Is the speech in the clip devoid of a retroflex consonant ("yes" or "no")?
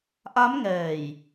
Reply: yes